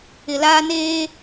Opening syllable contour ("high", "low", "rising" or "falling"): low